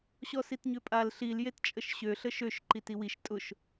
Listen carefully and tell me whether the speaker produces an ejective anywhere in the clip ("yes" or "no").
yes